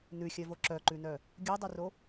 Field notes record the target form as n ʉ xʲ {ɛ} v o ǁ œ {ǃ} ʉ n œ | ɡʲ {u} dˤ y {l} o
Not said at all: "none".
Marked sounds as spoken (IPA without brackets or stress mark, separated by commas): œ, ǃ, ʉ, r